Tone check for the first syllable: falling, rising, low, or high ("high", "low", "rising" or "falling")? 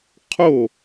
falling